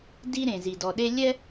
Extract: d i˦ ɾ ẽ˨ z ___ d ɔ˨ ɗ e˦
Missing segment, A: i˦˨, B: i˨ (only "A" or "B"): B